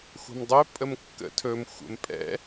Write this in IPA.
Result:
xʷ a̤ m dˤ ɵ pʼ ə m kː ə̰ tʰ ɵ m xʷ ə̰ m pʼ ɛ̰

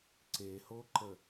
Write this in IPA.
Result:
ǀ e h o ǃ ə

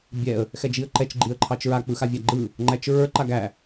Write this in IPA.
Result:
bʲ ɛ ə̯ | x ɛ d͡ʒ i ə̯ ǃ ɛ t͡ʃ ɡ͡ǃ i ə̯ ǃʰ ɑ t͡ʃ ɹ a k͡p ɯ x a vʲ æ ɡ͡ǃ ɯ | ŋ͡ǃ æ t͡ʃ ɹ ə˞ ǃ a ɡ æ

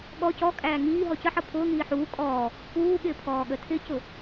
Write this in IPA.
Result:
ɠ ɔ c ɔ kʼ æː ŋ iː ɦ ɔ c ə ħ ʌ pʰ ʊː ŋ iː ħ uː kʼ ɔː | p uː ɠ ɪː pʰ ɔː ɠ ə tʰ ɪ c ʊ

